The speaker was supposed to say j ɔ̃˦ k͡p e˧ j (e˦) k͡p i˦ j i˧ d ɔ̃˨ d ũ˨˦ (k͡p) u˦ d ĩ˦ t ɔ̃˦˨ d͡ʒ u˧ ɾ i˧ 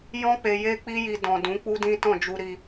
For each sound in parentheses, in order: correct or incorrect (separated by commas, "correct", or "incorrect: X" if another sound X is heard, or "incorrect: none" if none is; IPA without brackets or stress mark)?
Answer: correct, correct